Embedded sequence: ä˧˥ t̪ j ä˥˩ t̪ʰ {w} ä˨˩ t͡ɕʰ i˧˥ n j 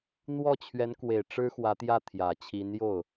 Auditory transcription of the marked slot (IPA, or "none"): j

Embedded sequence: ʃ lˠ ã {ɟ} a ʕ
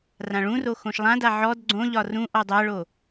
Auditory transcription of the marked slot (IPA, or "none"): d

